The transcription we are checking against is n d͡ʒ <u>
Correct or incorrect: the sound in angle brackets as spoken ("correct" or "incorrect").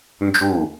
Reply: correct